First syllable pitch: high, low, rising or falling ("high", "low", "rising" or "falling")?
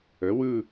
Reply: rising